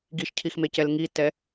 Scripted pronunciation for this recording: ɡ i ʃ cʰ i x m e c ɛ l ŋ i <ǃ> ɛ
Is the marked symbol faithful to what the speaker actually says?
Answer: no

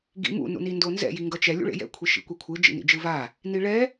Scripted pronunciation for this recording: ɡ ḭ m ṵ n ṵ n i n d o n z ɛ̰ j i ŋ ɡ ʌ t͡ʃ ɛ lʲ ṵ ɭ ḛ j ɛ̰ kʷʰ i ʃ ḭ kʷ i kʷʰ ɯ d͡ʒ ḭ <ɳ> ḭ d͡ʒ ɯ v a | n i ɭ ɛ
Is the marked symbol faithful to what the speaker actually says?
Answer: no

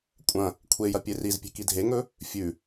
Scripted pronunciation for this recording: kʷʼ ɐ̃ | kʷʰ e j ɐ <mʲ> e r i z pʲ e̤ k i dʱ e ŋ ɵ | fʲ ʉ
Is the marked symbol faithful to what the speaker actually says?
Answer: no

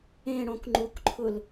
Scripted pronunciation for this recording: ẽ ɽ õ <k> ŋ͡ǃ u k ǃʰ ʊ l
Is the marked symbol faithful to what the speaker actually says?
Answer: yes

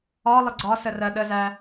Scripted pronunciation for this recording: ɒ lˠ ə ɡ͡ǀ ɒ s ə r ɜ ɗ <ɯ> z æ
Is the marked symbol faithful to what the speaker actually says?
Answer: no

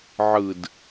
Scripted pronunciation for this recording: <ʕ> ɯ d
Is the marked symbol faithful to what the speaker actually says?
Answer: yes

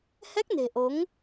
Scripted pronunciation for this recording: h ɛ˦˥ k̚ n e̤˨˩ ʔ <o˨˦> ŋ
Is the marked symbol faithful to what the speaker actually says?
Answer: yes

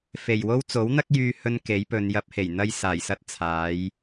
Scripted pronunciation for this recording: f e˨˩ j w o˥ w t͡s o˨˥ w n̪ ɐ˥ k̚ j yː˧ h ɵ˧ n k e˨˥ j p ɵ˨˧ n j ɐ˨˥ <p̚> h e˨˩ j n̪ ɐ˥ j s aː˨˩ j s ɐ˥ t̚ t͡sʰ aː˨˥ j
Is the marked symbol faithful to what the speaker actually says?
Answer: yes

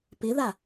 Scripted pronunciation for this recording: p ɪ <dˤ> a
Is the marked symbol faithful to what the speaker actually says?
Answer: no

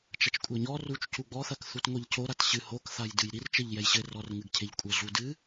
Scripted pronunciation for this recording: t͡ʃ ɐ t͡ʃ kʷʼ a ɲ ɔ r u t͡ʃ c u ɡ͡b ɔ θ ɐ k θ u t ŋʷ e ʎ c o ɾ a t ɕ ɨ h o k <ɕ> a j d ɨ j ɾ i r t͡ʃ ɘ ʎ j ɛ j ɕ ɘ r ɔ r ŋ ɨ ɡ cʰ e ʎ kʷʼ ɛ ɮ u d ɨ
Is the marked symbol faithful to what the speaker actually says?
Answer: no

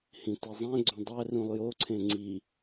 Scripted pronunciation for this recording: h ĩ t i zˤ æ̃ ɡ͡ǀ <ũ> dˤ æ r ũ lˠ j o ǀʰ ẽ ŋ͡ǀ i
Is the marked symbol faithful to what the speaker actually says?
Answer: no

